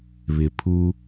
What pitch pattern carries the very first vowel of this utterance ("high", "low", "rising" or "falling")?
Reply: low